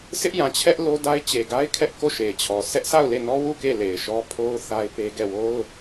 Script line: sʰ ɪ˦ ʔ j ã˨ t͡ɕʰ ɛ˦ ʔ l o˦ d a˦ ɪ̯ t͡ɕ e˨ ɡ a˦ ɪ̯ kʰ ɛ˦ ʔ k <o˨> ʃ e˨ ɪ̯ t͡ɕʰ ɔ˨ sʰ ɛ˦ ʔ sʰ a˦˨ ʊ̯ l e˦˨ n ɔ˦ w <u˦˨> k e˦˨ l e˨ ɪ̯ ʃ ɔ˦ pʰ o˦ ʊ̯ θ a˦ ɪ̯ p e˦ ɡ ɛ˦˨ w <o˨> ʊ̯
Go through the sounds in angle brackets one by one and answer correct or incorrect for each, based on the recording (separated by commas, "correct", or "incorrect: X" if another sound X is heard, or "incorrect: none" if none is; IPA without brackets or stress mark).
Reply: incorrect: o˦˨, correct, incorrect: o˦